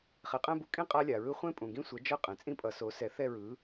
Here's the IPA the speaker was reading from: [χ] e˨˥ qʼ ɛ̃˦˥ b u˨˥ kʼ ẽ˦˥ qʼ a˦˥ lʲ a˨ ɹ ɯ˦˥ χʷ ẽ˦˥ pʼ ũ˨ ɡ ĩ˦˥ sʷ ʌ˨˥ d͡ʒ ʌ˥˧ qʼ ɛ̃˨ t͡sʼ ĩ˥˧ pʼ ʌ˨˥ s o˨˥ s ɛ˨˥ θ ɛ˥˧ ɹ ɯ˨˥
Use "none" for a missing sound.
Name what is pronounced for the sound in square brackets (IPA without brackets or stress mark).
χ